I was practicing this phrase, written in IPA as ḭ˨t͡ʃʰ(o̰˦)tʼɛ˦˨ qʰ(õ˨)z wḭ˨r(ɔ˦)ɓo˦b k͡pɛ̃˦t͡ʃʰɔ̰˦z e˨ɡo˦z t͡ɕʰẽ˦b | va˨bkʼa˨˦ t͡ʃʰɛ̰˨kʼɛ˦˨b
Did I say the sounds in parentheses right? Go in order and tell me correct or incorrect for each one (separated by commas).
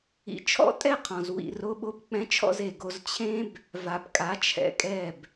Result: incorrect, incorrect, incorrect